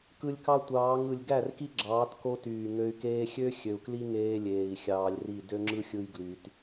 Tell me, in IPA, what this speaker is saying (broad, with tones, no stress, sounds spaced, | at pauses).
k ɯ˧ lʲ k ɑ˦ tʷ ɑː˨˦ ŋ ɯ˨ lʲ ɡ æ˦˨ r k i˦ ɡ͡ǁ ɑː˨˦ t k o˦ t yː˨ ŋ ø˧ y̯ k eː˧ xʲ ø˦ xʲ ø˨ u̯ k l i˦ ŋ eː˧ lʲ eː˨ i̯ xʲ ɑː˧ lʲ r i˦˨ d ø˦ ŋ͡ǁ ɯ˦ xʲ ɯ˧ j ɡ l y˧ t